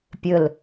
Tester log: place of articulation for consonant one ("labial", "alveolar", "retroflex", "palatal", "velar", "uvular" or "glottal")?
labial